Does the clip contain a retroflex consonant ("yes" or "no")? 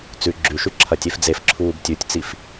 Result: no